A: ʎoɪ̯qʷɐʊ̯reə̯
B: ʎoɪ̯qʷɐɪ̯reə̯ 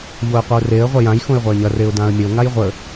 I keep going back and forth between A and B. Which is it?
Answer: A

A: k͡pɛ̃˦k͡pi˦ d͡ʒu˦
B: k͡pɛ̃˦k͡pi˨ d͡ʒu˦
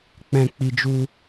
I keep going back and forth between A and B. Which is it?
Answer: A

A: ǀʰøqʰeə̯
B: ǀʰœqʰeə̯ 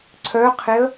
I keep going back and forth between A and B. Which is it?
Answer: B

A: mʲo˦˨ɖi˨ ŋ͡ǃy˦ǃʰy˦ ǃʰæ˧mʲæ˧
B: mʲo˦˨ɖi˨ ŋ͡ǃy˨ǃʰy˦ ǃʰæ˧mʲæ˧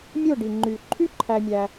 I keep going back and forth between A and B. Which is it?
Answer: B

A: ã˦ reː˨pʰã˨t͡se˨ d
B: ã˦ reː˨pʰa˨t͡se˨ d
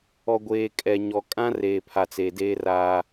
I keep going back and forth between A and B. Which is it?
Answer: B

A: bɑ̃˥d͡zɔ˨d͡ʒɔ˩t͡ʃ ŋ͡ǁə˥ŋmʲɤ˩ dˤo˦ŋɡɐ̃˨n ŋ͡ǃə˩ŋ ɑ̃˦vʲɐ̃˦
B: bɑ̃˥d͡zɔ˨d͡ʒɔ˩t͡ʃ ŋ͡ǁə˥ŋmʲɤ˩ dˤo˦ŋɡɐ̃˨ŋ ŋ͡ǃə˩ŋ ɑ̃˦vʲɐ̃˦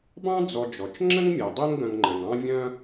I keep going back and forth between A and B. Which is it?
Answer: B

